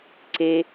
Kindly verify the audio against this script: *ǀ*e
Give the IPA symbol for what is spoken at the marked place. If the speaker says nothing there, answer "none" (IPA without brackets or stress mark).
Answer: ǀ